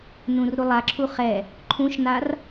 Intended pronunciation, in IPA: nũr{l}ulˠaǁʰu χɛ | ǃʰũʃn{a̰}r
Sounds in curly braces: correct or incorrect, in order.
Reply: incorrect, incorrect

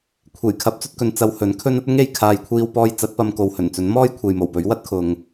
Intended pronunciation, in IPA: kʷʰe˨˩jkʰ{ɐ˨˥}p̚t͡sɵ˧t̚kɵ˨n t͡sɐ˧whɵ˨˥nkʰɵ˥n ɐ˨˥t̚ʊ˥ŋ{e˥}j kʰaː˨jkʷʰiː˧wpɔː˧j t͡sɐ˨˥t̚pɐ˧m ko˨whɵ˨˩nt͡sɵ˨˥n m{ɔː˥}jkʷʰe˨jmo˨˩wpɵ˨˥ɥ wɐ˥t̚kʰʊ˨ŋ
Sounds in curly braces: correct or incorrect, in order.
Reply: correct, incorrect, correct

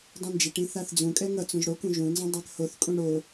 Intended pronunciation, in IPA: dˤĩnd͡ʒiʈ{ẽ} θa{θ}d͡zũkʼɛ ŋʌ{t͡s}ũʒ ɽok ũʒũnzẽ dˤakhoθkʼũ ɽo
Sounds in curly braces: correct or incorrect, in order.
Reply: incorrect, correct, correct

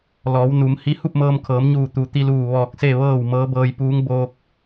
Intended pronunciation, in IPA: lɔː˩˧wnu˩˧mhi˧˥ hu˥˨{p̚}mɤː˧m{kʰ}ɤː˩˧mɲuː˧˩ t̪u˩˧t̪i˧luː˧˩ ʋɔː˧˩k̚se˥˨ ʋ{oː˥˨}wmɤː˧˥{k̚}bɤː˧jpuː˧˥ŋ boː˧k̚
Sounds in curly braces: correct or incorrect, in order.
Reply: correct, correct, incorrect, incorrect

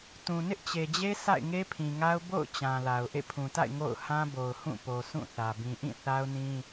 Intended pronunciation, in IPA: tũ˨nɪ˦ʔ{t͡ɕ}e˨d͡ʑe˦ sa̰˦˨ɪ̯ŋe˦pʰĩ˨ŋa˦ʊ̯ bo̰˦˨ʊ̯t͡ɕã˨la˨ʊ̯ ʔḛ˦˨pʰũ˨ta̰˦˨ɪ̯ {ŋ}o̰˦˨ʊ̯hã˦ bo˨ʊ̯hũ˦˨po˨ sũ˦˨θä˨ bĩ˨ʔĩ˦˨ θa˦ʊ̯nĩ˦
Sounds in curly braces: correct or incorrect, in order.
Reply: correct, correct

